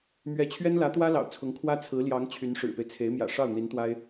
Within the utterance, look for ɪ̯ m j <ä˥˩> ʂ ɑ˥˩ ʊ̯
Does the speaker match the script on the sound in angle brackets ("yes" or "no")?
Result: no